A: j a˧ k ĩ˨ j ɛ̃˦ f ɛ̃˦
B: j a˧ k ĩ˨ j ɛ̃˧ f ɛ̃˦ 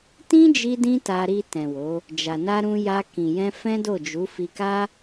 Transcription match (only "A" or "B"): B